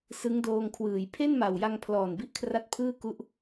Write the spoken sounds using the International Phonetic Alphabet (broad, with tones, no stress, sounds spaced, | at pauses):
s ɯ˦˥ ŋ d oː˧ ŋ kʰ w ɯː˩˦ j pʰ e˥˩ n m a˨˩ w j a˧ ŋ pʰ l ɔː˨˩ n b i˥˩ ʔ kʰ r a˥˩ t̚ pʰ ɯː˥˩ k u˦˥ ʔ